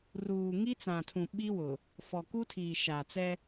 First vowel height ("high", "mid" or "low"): high